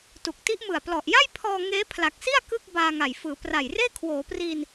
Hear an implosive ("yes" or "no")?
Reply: no